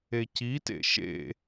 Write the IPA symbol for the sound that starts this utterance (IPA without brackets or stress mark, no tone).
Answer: e